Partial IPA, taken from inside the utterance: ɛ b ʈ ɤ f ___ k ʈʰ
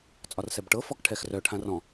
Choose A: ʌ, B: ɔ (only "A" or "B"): B